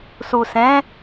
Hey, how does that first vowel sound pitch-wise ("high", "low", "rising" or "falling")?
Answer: low